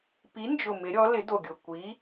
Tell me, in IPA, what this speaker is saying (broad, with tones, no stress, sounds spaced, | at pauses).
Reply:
p i˨˦ n d͡ʒ ʊ˨˩ m ɪ˨˦ ɾʲ ɔ˨˦ l ɪ˨˦ d o˨˩ ɡʲ ʊ˨˩ kʷ i˨˦